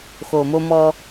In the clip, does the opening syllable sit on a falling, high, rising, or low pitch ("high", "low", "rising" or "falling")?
low